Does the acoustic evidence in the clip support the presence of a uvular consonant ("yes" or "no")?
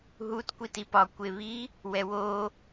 no